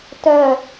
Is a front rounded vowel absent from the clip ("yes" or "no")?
no